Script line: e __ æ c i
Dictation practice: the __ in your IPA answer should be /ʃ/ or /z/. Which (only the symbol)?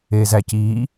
z